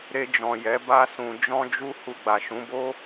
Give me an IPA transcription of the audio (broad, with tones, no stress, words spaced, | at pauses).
ɾe˧d͡ʒɔ̃˨jɛ˨˦ ba˧sũ˨ d͡ʒɔ̃˧d͡ʒu˧ hu˧ɡ͡ba˨ʃũ˨˦bo˦